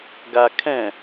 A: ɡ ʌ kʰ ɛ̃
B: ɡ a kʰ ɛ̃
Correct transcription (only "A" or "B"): B